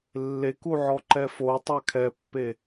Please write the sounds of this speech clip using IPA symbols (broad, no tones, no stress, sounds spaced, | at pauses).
lː e k u ʕ ɔ ǃ ɛ f o tˤ a kʰ ɛ pː e